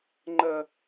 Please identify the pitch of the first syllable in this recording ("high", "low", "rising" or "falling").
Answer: high